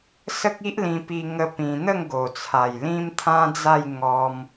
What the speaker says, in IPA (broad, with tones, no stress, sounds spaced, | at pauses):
s ə˦ k̚ i˦ ʔ l ĩ˧ p i˧ ŋ ə˦ p ĩ˧ n̪ ə˥˧ ŋ ɡ o˨˩ t͡sʰ a˨˩ j l ĩ˦ m t̪ʰ ã˦ d͡z a˥˧ j ŋ ɔ˧ m